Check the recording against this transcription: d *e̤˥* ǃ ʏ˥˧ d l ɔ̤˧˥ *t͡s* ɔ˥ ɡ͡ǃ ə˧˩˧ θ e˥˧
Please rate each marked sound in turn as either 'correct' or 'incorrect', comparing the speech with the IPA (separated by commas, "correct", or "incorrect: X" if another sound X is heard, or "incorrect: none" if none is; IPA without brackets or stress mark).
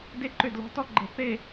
incorrect: e˥, incorrect: t